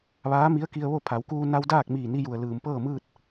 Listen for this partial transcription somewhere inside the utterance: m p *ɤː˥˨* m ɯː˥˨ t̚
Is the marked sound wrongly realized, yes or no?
no